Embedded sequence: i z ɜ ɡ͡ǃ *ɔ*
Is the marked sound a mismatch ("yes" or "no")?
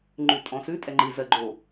yes